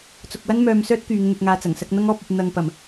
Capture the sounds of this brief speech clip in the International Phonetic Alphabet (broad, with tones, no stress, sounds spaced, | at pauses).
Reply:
t͡s ʊ˨ k̚ w ɐ˥ n m œː˧ m s œː˥ t̚ k yː˨˧ ŋ n̪ ɵ˧ t̚ ŋ aː˧ t͡s ɐ˨˩ ŋ s ɐ˧ k̚ n̪ ɐ˥ ŋ ɔː˧ p̚ ɵ˨ t̚ n̪ ɐ˨ ŋ p ɐ˨˩ m